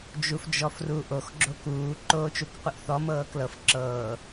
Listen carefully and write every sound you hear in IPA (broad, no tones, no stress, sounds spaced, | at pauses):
d͡ʒ u f d͡ʒ ɔ f r u ʔ o x ɡ͡ǁ o k uː ǃ oː t͡ʃ u k qʷ ɯ ʔ θ ɔ m ɤː k l ɤ f ǁ ɤː